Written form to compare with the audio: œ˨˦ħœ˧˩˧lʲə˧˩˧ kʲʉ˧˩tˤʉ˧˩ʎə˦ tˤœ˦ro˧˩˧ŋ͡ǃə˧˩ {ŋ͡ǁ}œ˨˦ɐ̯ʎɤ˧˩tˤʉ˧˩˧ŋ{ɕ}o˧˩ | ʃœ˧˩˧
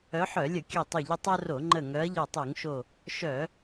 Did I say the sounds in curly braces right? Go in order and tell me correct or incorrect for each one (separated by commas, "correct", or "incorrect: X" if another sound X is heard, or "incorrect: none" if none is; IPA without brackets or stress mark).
incorrect: ŋ, incorrect: ʃ